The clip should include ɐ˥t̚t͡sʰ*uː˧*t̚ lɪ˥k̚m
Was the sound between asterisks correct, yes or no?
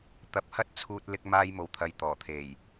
yes